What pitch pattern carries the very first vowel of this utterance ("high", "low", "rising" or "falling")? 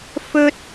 high